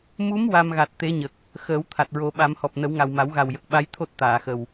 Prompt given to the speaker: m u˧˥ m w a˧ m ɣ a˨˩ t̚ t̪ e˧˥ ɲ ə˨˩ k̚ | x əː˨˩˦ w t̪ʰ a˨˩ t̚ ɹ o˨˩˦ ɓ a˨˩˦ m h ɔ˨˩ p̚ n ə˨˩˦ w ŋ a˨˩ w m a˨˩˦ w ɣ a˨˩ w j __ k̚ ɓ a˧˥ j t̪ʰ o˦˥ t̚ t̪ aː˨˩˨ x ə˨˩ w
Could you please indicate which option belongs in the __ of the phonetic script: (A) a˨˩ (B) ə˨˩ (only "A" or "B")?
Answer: B